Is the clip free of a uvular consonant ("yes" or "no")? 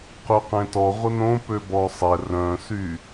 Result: no